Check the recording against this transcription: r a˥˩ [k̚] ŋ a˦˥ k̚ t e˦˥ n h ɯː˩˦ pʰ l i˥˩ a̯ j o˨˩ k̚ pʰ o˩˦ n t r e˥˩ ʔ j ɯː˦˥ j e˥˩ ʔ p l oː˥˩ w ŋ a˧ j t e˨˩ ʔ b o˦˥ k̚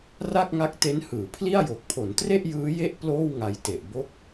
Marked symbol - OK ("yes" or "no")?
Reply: yes